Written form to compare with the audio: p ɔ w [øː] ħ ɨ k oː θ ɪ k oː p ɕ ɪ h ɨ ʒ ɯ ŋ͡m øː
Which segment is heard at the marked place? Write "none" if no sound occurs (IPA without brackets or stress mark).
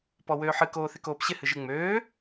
øː